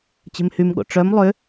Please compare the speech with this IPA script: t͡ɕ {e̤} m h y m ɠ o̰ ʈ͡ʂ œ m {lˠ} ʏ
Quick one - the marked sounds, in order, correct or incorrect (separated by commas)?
correct, correct